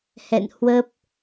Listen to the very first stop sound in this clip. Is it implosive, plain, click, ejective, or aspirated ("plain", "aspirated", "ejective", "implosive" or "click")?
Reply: plain